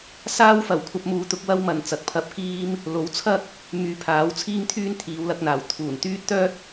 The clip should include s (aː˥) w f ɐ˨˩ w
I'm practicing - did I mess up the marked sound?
no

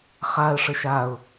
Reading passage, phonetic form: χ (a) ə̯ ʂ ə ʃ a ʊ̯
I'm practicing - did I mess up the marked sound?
no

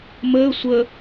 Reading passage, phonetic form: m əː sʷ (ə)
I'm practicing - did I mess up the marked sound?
no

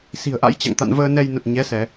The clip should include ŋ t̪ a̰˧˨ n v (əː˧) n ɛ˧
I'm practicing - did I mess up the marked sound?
no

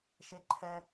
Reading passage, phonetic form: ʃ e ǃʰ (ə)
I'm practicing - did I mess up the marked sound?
yes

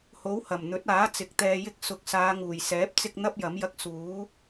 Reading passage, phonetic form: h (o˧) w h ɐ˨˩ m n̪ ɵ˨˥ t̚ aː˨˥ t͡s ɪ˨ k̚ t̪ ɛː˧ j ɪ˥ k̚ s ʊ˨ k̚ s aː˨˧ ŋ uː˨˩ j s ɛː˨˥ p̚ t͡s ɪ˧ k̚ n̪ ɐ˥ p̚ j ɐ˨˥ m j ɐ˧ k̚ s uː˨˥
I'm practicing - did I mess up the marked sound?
yes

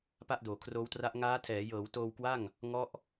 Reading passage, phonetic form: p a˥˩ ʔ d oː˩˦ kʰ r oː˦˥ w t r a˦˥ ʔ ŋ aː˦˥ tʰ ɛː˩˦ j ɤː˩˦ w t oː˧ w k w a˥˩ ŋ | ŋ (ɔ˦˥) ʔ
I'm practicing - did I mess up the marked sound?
no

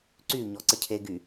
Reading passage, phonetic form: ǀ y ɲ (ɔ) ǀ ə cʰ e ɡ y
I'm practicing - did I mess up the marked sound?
no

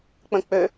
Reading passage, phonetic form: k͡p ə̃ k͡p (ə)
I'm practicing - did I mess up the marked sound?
yes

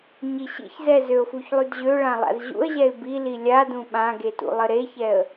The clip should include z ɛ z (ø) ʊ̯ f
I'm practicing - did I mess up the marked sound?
no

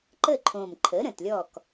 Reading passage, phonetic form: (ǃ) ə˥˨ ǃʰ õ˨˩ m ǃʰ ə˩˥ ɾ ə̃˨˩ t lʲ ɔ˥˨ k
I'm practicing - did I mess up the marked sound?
no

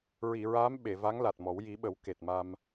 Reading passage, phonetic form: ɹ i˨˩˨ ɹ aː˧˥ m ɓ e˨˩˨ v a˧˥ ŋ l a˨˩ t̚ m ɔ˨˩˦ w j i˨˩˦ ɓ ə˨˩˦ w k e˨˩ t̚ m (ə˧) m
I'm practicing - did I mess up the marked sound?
yes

